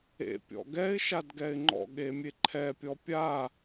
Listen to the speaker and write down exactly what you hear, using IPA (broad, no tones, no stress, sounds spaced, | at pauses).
ḛ pʲ ɔ̰ ɡ ɛ ɪ̯ ʃ a d ɡ ɛ ɪ̯ ŋ͡ǃ ɔ̰ ɠ e mʲ e ǃʰ ɛ pʲ ɔ pʲ a